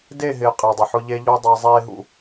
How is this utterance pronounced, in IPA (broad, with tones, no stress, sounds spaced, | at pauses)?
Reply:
d e˦˨ ɦ ɪː˨ qʼ e˨ dˤ ɪ˨ ħ ʊ˦ ʎ e˦ ʎ o˦ dˤ a˦ zˤ eː˦ ɦ ṵ˦